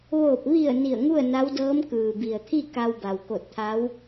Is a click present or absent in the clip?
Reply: absent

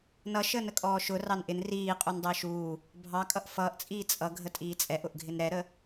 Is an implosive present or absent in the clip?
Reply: absent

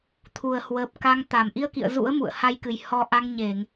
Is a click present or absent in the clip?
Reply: absent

